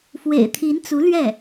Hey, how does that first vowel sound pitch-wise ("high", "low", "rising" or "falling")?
low